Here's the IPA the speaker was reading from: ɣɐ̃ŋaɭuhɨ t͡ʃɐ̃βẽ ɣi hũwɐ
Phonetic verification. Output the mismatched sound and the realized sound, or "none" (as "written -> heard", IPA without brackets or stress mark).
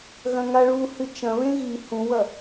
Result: none